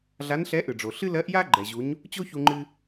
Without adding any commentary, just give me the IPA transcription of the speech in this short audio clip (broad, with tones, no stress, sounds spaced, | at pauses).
ɮ a˧˥ n ɬ ɛ˧˥ ʔ ɯ˩ ɖ͡ʐ o˩ ɬ ɨ˥ l ɜ˧˥ ʔ j a˥ ɡ͡ǃ ɛ˩ ʑ u˩˧ ɲ | t͡ɕ o˥ ç u˧ ŋ͡ǃ ɨ˧